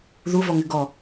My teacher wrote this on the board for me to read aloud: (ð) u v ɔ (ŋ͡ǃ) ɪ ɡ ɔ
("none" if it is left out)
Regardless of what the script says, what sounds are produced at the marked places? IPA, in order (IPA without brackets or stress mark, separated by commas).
ð, ŋ